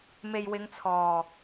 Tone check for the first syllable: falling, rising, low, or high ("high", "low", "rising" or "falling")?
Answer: low